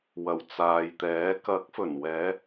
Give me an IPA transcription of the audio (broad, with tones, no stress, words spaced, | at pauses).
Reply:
wɐ˨˩wt͡saː˨jt̪ɛː˨˥ kɐ˨˥k̚fɵ˨˩nwɛː˨˧